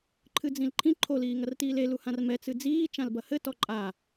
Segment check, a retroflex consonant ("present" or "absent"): absent